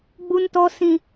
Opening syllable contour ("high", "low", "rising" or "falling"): high